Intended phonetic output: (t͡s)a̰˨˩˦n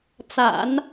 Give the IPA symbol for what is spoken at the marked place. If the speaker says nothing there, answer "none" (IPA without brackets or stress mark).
t͡s